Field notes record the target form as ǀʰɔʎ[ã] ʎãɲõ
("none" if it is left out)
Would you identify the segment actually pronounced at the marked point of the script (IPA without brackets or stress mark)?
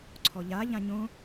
a